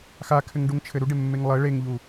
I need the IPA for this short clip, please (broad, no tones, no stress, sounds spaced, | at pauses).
x a kʰ ɘ ŋ ɖ u ŋ t͡ʃʰ ɘ ɾ u ɖ e mː e ŋ lˠ ɘ ɭ e ŋ ʎ u